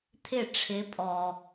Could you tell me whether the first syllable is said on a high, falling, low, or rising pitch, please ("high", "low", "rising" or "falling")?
falling